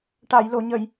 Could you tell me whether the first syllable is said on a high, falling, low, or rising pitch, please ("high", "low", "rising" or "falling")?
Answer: low